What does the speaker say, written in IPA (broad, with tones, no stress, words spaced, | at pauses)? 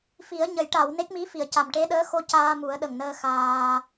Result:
fi˨˩˦ə̯ɲə˨˩˦j ʈa˨˩˨w ne˦˥k̚mi˧˥fi˨˩˨ə̯ ca˨˩mʈe˧˥ɗəː˧˥xo˧ caː˧mu˨˩˦ə̯ɗə˨˩ŋnəː˧ xaː˧